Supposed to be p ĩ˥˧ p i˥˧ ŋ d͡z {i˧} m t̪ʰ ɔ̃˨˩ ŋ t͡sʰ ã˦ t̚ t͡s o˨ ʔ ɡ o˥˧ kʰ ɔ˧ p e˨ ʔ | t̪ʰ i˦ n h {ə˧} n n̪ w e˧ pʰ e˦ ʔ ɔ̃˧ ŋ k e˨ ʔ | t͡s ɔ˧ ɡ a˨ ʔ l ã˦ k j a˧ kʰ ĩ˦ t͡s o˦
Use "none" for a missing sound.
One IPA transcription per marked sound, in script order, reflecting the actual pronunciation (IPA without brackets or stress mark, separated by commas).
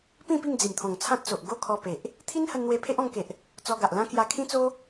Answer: i˨˩, ə˧